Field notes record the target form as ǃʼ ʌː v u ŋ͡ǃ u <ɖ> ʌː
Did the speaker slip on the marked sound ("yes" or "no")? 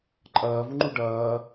no